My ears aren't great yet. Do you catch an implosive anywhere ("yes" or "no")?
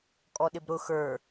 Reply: yes